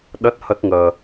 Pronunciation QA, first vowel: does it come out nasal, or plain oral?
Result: oral